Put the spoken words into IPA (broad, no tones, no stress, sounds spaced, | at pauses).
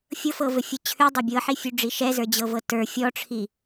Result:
fʲ ɤ f ɤ v ɘ fʲ ə˞ t͡ɕʰ ʉ dˤ ə˞ bʲ ɤ ħ i fʲ ʉ ɖ͡ʐ i ʃ ɛ z ə˞ d͡ʑ ɤ v ɤ t ə˞ fʲ ɔ ʈ͡ʂʰ i